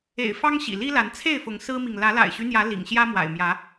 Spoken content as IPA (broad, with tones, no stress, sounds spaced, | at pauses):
ḛ˨˩ ɪ̯ f ɑ˦ ŋ ɕ ḭ˨˩ l i˦ l a˨˦ n t͡sʰ e˥˨ ɪ̯ f ʊ˨˦ ŋ s ɹ̩˦ m i˨ ŋ l ä˨˦ l a̰˨˩ ɪ̯ ɕ y˦ n̪ j ä˨˦ l ḭ˨˩ ŋ ɕ j ä˦ m w a̰˨˩ ɪ̯ m j ä˨˦